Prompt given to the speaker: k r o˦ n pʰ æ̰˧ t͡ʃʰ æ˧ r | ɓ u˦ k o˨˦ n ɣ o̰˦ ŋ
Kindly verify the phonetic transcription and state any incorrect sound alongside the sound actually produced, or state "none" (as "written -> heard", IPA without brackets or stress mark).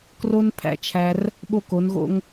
u˦ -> o˦